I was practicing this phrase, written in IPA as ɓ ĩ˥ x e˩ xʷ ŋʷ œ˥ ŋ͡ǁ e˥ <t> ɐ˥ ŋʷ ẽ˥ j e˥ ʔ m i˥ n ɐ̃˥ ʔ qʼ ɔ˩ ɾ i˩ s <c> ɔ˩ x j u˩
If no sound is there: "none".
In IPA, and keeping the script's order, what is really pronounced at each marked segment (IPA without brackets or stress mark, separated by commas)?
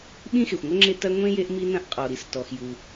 t, t